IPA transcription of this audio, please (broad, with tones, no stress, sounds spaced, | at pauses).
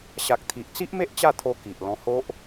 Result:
ɕ a˨ k̚ t̪ʰ i˨ ʔ t͡s i˦ ʔ m e˦ ʔ t͡ɕ a˥˧ t̪ʰ o˧ k i˨ ʔ l ɔ̃˧ h o˦ ʔ